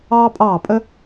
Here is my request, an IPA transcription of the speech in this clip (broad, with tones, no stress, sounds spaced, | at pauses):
ɑː˦ pʼ ɑː˦˨ pʼ ə˦